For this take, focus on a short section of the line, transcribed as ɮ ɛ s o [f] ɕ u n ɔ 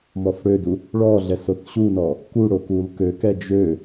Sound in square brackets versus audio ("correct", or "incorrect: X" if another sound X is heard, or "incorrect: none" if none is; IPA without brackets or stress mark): incorrect: θ